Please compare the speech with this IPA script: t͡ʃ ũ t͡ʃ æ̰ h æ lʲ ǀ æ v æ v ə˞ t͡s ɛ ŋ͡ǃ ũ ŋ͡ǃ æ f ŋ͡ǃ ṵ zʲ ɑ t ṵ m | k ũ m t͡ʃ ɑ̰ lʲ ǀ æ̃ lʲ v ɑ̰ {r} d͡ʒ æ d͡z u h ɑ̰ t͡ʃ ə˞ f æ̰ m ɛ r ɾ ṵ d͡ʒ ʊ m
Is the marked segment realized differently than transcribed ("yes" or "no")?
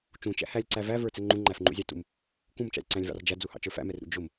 no